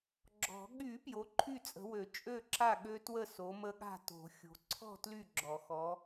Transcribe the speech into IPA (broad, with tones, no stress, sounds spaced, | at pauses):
ɡ͡ǁ ɔ̤˨˩˦ ɠ y˨˩˦ p j o˨˦ ǃʰ y˥˨ t͡sʼ ə̤˨˦ w ø˨˩˦ t͡ʃʼ ø˥˨ ǁ a˥˨ ɠ ø˦˥ t w ə˥˨ s o˨˦ m ə˦˥ ɠ a̤˥˨ t o̤˨˩˦ xʲ o̤˨˦ ǀʰ ɔ̤˥˨ t l y˥˨ ɡ͡ǁ ɔ˨˩˦ x ɔ˨˦